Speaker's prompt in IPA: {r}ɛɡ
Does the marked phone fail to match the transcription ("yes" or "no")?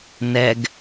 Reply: yes